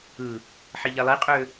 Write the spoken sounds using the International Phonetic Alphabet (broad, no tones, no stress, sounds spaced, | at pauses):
ɯ | ħ i ʎ e lˠ i qʼ ø